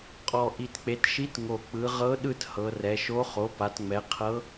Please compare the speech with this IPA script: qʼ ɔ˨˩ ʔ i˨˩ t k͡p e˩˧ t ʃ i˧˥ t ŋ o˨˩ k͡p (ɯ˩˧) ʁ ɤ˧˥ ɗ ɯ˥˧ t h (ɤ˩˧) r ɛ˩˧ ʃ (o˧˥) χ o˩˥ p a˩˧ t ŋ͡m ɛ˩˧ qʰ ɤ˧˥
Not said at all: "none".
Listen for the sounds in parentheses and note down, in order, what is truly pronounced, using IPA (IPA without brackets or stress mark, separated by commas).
ɯ˩˧, ɤ˩˧, o˧˥